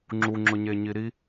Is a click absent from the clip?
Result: no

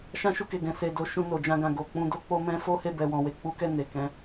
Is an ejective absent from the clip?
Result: yes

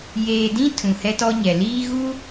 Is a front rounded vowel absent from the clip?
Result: yes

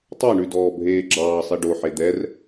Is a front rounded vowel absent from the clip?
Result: yes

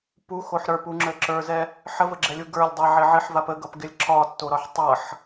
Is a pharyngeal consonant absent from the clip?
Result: no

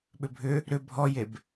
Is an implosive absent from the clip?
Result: no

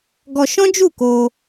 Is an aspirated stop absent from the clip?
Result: yes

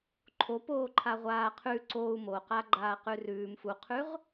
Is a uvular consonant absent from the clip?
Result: no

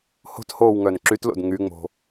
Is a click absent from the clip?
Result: no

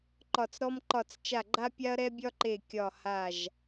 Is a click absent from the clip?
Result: no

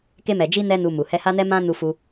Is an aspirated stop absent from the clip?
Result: yes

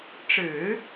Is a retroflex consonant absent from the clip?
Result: no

